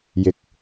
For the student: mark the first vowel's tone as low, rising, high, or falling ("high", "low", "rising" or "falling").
low